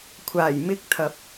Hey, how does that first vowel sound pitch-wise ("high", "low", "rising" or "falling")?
low